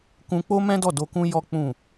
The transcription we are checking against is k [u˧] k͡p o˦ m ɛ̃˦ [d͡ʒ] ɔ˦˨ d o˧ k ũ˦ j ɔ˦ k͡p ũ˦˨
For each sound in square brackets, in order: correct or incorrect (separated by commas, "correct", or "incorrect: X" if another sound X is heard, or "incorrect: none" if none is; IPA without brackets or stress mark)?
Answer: incorrect: ũ˧, incorrect: d